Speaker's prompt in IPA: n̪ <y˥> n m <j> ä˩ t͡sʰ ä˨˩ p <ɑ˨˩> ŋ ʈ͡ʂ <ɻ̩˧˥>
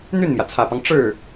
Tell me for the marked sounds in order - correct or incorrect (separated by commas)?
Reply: incorrect, correct, incorrect, incorrect